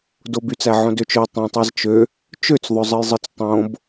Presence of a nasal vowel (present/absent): present